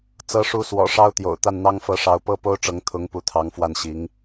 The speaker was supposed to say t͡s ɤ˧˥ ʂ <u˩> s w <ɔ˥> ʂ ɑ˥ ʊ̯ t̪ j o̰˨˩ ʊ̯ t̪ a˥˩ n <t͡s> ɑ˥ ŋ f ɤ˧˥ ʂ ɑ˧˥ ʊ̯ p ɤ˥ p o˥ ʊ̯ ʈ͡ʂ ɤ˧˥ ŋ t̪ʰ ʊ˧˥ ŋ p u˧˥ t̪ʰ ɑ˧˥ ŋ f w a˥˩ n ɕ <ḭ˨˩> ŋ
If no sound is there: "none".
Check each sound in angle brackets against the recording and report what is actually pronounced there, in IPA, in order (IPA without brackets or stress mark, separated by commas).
u˧˥, ɔ̰˨˩, n̪, i˧˥